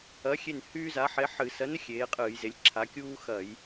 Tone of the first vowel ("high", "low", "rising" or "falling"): rising